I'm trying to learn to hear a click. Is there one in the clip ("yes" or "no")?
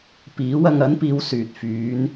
no